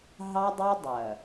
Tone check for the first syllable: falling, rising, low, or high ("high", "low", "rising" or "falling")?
high